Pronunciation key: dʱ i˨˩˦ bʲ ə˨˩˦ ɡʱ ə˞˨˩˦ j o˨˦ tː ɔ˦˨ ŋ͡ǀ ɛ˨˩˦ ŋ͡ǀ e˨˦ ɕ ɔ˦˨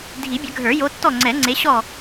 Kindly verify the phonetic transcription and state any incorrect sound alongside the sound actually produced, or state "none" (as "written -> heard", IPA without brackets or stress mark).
none